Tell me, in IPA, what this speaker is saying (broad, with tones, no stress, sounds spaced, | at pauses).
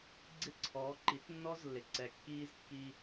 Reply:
ɡ͡ǀ ɪ˦ ǀʰ ɔː˨˦ ǃ i˨˦ t nː ɔ˦ z lː ɪ˨ ǀ ɛ˨ kː iː˦ z kː i˦